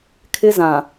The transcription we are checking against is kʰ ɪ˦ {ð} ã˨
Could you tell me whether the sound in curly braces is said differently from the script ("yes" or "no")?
yes